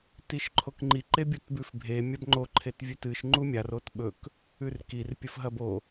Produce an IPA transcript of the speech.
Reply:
tiʃǃʰokŋ͡ǃi ǃebʲutbʉfbʱe mʲabŋ͡ǃo ǃʰetvʲʉtɨʃ ŋ͡ǃumʲar otɓɵk | ʉrkir pʲɵfɦɐbo

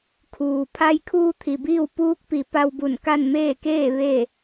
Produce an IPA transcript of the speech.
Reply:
kʰuː˩ pʰa˧jkʰuː˧ t̪ʰi˩biː˥˨w puː˧˥k̚pi˩˧ pa˧wbu˧˩nka˥˨nmeː˥˨ keː˥˨ ʋe˥˨

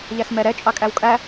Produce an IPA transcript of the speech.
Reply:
ʎæsmɛɾɛ t͡ʃʼɑkʼæwkʼæ

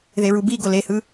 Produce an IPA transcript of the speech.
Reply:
ðeɹubi ɡolehɯ

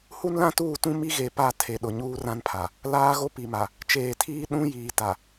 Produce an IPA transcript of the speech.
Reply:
hu˦nlã˦tuː˦˨tũ˦ mi˦ɣe˨pa˦˨ tʰe˨ɗʊ˨ ɲuː˦rã˦npʰa˨ | laː˦ɣo˦ pi˨ma˨ | t͡ʃeː˨tʰiː˦ ɗũ˦jiː˨ ta˨

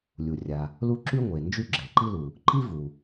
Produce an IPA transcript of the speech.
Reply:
lʲu˩ rʲa˩ | lu˥ ǁy˥ ŋʷe˩ nd͡ʒy˥ɡ͡ǁɛ˩ǃi˥lu˩ | ǃi˥vu˩

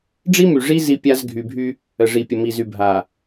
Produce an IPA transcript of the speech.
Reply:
ɖ͡ʐi˦ my˨ ʐi˦ zi˦pʲa˦z ɡʱy˨bʱy˦ | ə˨ʐi˨pʲə˨mi˨ zy˨bʱa˨

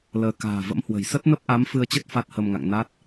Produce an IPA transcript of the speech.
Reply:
ləː˧ ka̤ː˨˩və̰˧˥mhwə̤˨˩j sə˦˥t̚nə˦˥p̚ʔa˨˦m fɨ˧ə̯t͡ɕə˦˥t̚ fa˦˥t̚hə˧mŋa̰˧˨ŋ na˦˥t̚

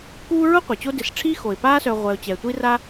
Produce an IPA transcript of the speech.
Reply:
kuː˦ɹʊ˥ qʷɪ˩t͡ɕo˦dɪ˨s ʈ͡ʂʰi˦xo˩ɪ̯paː˦sœ˨ ʁʷɛ˨ʊ̯t͡ɕɛ˩ tʷi˥ra˥

